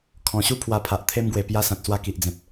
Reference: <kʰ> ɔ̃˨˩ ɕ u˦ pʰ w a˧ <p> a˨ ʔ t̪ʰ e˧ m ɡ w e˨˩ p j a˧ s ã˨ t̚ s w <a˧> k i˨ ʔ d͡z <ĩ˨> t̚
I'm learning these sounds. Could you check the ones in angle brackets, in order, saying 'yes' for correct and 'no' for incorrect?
yes, no, yes, no

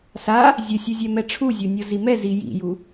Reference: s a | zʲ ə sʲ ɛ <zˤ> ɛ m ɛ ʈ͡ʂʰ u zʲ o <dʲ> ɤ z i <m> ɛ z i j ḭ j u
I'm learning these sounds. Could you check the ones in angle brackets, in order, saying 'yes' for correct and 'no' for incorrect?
no, no, yes

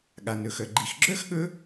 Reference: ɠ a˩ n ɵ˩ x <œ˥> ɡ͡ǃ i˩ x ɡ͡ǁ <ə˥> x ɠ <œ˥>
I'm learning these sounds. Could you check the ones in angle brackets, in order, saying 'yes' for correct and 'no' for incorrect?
no, no, no

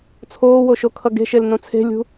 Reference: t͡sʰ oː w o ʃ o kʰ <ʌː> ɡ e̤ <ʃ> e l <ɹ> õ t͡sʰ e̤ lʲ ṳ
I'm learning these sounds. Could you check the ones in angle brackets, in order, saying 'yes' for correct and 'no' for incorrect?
no, yes, no

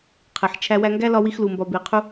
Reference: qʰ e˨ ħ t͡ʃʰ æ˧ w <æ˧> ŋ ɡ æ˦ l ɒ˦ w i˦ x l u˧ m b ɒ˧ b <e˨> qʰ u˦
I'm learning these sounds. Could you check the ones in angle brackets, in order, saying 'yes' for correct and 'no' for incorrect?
yes, no

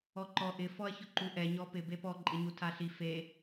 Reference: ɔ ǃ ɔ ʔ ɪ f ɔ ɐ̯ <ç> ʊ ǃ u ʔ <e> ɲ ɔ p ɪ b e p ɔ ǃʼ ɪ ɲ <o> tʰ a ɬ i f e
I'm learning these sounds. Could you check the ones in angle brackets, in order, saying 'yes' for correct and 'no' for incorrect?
yes, no, no

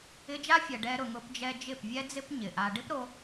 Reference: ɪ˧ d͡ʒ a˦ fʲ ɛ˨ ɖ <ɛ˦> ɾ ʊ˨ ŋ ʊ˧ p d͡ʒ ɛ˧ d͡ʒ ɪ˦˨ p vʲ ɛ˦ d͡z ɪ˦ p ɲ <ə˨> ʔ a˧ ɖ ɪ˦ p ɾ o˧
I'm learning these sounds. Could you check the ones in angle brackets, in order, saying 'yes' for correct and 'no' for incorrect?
no, no

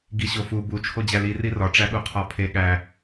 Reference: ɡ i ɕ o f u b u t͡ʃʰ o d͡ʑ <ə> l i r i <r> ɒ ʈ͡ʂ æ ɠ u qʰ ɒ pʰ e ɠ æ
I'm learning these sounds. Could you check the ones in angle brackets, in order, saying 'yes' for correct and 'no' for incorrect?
no, yes

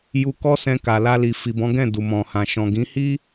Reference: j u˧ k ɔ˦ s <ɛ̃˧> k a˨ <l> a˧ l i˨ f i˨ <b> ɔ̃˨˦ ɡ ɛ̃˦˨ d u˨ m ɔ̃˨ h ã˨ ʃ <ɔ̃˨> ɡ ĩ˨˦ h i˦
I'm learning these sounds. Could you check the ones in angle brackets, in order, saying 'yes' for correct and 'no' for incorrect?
yes, yes, yes, yes

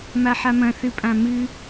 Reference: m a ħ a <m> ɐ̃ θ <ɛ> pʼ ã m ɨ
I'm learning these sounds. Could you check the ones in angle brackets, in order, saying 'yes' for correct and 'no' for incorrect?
yes, no

